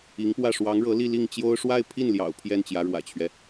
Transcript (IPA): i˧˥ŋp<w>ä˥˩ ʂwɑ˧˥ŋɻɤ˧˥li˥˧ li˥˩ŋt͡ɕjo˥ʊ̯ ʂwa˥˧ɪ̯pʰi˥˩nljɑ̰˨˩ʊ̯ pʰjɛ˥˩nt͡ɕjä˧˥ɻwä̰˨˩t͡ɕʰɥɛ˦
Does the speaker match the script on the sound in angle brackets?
yes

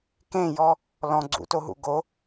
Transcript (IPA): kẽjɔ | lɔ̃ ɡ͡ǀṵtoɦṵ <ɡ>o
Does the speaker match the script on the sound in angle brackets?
yes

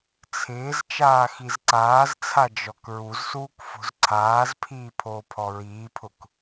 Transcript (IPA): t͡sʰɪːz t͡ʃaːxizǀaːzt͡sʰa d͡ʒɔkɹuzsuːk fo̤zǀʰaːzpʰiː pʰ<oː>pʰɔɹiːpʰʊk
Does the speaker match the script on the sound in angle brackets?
yes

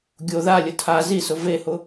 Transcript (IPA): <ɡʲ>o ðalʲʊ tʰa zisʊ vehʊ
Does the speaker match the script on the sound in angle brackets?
yes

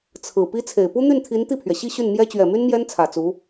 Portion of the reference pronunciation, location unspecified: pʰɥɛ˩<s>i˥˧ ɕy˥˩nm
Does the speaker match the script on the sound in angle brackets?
no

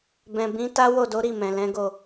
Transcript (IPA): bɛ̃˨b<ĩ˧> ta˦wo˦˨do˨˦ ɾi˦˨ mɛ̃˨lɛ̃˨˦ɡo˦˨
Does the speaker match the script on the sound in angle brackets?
no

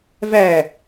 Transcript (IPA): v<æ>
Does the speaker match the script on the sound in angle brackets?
yes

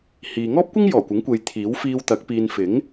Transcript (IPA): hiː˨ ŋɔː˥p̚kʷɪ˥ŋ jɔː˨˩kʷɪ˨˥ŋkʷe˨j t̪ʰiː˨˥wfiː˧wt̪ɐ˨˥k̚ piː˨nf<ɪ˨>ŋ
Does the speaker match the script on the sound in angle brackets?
no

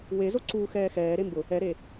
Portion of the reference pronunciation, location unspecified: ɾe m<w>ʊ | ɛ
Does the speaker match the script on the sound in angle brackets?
no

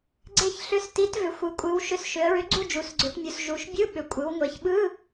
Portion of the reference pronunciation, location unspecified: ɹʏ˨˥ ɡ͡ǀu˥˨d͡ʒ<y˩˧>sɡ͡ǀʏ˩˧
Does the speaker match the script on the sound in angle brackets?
no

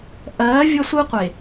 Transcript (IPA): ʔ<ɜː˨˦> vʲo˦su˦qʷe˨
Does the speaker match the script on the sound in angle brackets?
yes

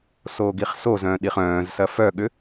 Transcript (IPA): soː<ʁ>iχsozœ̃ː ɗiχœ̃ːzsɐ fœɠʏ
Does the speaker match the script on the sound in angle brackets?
no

